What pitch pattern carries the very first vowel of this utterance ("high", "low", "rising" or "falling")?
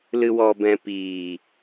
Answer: low